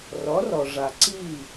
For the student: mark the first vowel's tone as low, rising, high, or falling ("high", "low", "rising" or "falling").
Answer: rising